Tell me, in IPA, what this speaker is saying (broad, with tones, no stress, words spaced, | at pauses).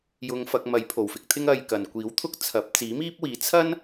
jʊ˧ŋ fɐ˧k̚mɐ˨˥j pʰo˨˩wfɪ˧k̚t̪ʰɪ˥ŋ ɐ˧jkɐ˨n kʷiː˨˥wt̪ʰʊ˥k̚t͡sʰɐ˨˥p̚ t͡siː˨˥miː˥p̚wiː˨˥ t͡sʰɐ˥n